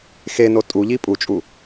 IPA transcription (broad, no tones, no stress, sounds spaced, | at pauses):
x e n o tʼ u ʎ i pʼ u t͡ʃʼ u